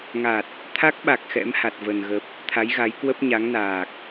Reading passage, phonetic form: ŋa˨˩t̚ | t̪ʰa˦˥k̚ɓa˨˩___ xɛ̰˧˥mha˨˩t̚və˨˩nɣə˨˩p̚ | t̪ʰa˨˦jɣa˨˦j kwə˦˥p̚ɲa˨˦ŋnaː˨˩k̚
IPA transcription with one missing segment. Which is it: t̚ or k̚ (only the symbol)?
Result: k̚